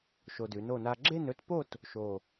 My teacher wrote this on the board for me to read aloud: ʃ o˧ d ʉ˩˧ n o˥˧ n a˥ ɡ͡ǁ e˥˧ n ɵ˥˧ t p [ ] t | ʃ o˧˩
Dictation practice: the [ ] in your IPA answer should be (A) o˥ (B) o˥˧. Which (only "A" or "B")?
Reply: B